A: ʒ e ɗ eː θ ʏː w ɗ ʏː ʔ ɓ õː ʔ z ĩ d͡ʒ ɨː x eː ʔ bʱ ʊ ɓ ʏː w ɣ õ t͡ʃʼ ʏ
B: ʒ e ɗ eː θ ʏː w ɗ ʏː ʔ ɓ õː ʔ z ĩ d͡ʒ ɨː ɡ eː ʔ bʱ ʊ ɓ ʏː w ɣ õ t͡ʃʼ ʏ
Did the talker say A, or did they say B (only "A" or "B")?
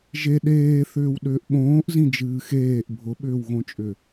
A